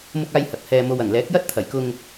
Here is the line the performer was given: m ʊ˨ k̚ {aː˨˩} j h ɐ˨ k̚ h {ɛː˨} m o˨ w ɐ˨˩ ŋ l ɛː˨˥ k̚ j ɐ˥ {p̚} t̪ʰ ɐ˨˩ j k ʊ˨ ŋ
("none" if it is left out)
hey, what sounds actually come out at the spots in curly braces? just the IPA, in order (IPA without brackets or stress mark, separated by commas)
aː˨, ɛː˨, t̚